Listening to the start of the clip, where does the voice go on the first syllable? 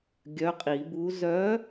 rising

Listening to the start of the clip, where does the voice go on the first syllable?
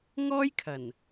high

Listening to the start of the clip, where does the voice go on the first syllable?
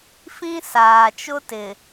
high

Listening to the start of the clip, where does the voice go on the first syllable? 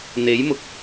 rising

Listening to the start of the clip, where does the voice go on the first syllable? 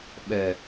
low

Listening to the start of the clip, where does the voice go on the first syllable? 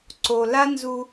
low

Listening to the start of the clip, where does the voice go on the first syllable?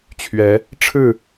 rising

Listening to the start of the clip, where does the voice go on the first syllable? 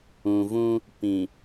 low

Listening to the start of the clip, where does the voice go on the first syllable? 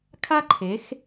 high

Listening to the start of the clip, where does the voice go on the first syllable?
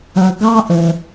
low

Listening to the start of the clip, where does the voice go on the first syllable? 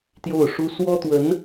falling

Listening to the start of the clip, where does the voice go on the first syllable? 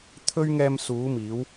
high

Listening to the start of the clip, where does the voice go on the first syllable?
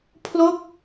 falling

